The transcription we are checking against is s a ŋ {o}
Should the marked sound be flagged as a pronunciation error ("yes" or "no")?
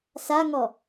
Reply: yes